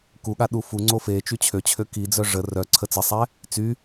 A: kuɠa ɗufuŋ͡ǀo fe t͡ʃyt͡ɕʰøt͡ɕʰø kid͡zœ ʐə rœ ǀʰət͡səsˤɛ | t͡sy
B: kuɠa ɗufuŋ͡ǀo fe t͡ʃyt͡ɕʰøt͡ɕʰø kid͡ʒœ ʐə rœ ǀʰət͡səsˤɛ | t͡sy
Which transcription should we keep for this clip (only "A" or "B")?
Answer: A